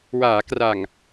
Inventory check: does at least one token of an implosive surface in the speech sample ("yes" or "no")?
no